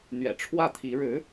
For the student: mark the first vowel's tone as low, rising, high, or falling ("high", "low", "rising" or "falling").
low